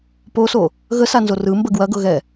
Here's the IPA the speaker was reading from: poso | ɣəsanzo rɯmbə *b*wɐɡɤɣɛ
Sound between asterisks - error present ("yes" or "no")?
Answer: yes